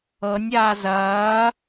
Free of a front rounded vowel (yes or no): yes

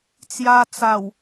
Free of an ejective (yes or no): yes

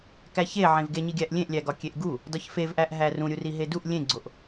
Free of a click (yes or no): no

